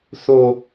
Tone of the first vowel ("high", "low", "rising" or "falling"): high